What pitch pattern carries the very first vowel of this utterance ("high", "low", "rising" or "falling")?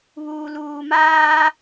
low